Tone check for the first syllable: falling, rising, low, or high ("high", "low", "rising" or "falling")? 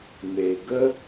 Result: low